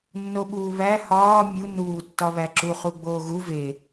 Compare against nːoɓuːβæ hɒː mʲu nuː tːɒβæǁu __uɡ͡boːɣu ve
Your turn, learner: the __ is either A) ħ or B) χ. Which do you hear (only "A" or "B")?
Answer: B